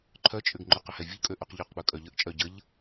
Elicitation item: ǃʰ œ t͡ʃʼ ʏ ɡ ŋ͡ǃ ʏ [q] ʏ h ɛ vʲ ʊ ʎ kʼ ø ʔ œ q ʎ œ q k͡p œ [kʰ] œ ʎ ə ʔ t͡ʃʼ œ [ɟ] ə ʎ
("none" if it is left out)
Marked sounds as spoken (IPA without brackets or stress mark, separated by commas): q, kʼ, ɟ